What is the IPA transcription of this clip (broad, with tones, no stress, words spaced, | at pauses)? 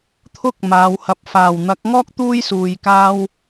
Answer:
t̪ʰʊ˥k̚ maː˨˧whɐ˧p̚ faː˨˩wn̪ɐ˨˥k̚ŋɔː˥k̚ t̪uː˥j suː˨jkaː˥w